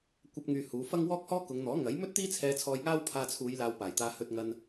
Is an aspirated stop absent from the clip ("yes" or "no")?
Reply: no